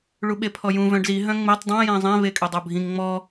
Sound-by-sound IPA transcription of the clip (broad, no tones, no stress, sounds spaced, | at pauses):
ɭ u ɓ e pʰ ɔ j ũ v œ̃ ɖ z i ɦ œ̃ ŋ͡m e tˤ dˤ õ j ɛ̃ zˤ ɛ̃ v e kʼ ø dˤ o bʱ ĩ ŋ ŋ͡m ɔ